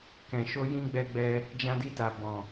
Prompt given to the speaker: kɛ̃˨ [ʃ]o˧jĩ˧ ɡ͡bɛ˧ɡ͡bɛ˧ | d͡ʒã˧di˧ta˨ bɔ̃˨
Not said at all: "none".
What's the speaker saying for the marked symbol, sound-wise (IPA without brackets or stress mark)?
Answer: ʃ